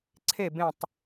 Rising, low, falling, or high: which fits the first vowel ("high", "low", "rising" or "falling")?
falling